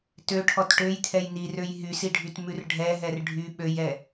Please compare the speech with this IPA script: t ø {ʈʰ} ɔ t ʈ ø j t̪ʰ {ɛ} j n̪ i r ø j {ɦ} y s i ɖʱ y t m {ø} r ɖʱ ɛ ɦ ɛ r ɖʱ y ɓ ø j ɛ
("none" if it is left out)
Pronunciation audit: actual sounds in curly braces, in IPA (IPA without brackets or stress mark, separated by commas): ʈʰ, ɛ, ɦ, ʉ